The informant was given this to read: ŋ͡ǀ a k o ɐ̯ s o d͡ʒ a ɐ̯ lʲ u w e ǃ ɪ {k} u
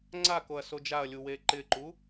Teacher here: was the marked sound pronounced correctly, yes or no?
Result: no